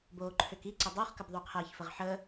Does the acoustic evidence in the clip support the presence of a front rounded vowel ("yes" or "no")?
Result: yes